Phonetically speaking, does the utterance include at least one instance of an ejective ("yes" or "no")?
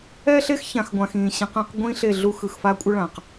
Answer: yes